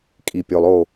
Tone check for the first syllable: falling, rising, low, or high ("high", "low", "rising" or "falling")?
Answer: low